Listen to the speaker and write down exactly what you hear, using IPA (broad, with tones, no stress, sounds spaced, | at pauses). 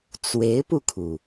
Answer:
t͡s w e˧˥ ɪ̯ p u˧ kʰ u˩